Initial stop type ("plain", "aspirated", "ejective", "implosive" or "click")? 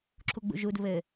click